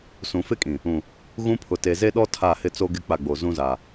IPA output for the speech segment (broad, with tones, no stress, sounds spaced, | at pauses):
s ũ˨ f ɪ˦ kʼ ĩ˨ | ũ˨ | ɣ ũ˦ pʰ ʊ˨ t e˨ z e˦ ɗ ɔ˦ tʰ a˦˨ h ɪ˦ t͡s o˦ ɡ ɪ˦ k͡p a˦˨ ɡ͡b o˨ z ũ˦ z a˨